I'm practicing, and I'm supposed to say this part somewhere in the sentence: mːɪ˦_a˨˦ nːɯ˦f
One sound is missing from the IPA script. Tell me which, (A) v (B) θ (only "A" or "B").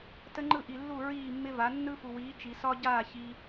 A